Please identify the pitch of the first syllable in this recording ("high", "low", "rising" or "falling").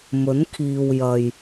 rising